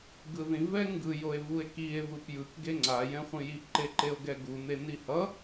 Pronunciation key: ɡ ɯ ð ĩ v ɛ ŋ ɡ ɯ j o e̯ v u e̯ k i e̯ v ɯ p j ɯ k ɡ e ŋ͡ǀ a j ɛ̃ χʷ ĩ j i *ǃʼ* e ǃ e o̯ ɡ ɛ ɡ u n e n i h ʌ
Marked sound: incorrect: ǃ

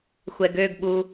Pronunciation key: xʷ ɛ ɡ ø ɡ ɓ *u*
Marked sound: correct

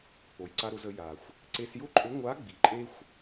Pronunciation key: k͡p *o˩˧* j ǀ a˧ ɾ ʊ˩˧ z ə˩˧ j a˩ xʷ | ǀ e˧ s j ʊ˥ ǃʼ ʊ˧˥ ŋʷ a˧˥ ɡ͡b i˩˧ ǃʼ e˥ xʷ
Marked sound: incorrect: o˩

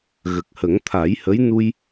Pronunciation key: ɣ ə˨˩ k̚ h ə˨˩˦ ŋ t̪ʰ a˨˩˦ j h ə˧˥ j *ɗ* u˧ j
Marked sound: incorrect: n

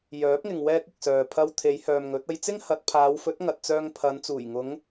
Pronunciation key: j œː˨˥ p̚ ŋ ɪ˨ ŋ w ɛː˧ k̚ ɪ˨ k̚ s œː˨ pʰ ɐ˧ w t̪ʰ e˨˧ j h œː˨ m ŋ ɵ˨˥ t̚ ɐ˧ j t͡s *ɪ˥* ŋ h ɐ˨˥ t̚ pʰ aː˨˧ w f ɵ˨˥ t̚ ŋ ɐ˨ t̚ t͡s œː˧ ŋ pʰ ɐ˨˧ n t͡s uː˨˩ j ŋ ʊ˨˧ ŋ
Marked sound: correct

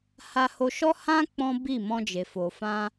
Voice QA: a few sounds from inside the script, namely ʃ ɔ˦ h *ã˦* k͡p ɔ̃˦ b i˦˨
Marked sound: correct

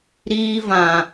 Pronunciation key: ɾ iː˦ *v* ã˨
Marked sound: correct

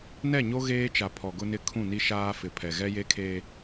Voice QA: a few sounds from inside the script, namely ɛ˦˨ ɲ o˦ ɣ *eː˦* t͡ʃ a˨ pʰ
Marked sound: correct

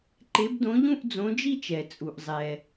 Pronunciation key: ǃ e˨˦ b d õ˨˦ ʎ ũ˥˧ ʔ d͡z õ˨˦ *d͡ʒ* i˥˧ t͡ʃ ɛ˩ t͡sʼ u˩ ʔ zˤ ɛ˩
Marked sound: correct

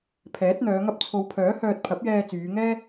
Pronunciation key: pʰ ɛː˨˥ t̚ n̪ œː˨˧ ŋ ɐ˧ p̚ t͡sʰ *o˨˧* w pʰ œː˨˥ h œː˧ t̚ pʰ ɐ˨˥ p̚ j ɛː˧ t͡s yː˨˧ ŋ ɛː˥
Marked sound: correct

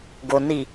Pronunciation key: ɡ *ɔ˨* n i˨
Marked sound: incorrect: o˨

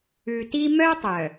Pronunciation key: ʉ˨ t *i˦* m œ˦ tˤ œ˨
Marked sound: correct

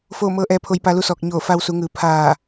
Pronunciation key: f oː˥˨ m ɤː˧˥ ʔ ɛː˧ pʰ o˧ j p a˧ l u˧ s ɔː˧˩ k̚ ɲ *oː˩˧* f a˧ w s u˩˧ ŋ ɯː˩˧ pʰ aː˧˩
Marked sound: incorrect: oː˧˩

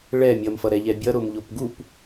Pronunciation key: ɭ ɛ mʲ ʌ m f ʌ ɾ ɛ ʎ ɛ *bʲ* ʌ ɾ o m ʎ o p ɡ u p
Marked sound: correct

